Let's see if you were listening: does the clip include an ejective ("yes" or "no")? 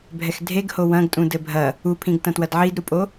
yes